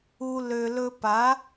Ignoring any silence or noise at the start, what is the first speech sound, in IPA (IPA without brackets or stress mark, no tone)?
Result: u